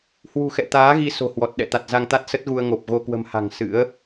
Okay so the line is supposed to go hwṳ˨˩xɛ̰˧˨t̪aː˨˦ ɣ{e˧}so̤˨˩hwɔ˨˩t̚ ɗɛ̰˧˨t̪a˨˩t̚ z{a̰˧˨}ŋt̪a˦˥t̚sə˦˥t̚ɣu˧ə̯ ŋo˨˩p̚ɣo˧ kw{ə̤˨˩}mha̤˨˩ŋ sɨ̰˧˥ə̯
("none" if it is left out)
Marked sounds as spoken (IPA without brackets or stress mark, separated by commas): i˧, a˧, ə̤˨˩